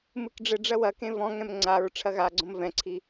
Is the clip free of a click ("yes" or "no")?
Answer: no